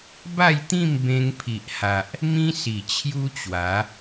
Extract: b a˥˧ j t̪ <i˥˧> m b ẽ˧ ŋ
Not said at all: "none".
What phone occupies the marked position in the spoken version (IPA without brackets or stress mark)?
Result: ĩ˥˧